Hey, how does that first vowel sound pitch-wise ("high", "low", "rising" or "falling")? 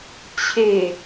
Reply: low